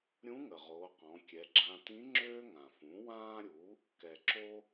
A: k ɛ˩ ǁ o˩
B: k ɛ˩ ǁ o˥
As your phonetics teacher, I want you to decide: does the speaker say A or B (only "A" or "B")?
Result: B